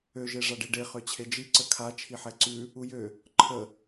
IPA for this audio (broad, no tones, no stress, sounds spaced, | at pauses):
ø ʒ e ʐ a ɖ i ɖ e χ ø t͡ɕʰ e d͡ʒ i ǀ ə kʰ a t͡ʃʰ i ħ ɛ ǀ ʉ | u j ø | ǃʰ ə